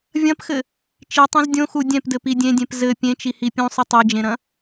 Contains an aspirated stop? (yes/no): no